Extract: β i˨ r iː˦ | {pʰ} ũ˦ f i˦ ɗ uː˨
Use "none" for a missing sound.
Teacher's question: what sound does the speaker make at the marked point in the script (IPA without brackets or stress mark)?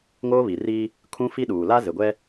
kʰ